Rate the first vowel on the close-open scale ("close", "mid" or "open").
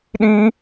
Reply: close